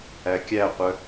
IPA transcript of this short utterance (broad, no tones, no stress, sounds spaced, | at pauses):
æ kʲ æ qʷ œ